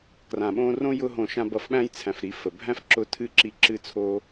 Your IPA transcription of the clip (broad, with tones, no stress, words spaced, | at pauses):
krã˨ɓõ˦ rõ˦jʊ˧ɦõ˨ ʃã˧bʌ˨fɓæ̃˦jt͡sʰæ̃˨f ɾi˨˦fə˨ bʱæ̃˦fǁʊ˧ tʰɨ˦ǁi˧ ǁɨ˦t͡sʰo˦